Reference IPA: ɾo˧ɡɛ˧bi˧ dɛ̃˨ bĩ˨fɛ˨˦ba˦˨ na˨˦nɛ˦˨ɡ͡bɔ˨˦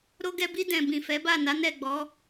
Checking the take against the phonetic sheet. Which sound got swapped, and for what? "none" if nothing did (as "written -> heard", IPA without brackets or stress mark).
none